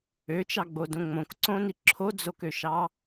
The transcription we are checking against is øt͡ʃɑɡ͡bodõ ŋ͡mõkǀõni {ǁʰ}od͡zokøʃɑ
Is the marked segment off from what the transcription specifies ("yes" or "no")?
no